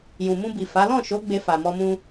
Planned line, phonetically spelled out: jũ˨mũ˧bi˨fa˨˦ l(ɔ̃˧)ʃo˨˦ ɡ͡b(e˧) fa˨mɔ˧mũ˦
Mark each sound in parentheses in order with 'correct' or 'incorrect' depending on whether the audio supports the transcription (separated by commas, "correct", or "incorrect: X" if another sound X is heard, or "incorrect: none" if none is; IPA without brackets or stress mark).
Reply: incorrect: ɔ̃˦˨, correct